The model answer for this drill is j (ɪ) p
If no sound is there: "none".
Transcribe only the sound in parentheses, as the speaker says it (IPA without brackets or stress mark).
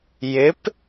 ɪ